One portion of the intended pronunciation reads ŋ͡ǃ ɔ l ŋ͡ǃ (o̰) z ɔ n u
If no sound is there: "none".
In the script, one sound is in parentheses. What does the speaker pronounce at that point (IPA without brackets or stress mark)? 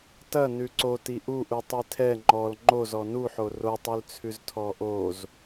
o